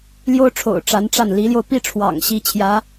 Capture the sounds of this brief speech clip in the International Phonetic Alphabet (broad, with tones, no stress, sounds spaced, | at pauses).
l j o˥ ʊ̯ ʈ͡ʂʰ o̰˨˩ ʊ̯ ʈ͡ʂ a˧˥ n ʈ͡ʂ a˥˩ n l i˧˥ l j o˧ ʊ̯ p i˥˩ ʈ͡ʂʰ w ɑ̰˨˩ ŋ ɕ i˥ t͡ɕʰ j ä˧˥